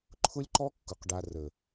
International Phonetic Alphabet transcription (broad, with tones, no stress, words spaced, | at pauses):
ǃʰʊ˦lʲǃɔ˦kːʊ˨q ɖa˨ rə˨